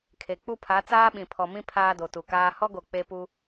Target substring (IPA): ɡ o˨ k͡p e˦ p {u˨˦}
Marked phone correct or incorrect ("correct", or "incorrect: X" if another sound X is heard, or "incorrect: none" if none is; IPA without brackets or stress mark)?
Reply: incorrect: u˦